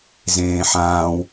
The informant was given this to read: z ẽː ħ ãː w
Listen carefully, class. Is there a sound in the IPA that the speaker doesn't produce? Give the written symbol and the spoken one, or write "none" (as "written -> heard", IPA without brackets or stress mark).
none